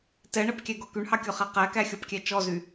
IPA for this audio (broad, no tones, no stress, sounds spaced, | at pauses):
t ɛ ɳ ɛ p kʲ æ ɡ ɔ k y ɳ h ɑ kʲ ɔ χ æ q æ k æ xʲ ɔ p kʲ æ t͡ʃ ɔ z y